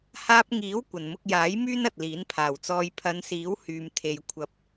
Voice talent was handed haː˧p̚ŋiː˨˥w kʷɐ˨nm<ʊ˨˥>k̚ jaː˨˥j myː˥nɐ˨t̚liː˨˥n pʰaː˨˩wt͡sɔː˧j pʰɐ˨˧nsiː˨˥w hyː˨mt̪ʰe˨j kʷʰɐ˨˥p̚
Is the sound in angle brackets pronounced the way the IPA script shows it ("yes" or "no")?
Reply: no